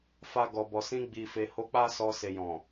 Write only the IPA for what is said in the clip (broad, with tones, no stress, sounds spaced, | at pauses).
f a˨ ɡ ɔ˨ b ɔ˨ s ĩ˧ ɡ͡b i˨ f e˨ h o˧ k͡p a˦ s ɔ˧ s e˨ j ɔ̃˨